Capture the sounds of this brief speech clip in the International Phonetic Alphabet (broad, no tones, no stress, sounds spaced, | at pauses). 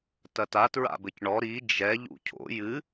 t ɐ t a t ɹ a̰ b ɘ c ɳ ɔ ɾ i d͡ʒ ɛ ʎ ṵ cʰ o̰ j ɨ